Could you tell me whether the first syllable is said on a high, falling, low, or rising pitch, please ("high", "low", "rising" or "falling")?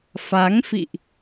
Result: rising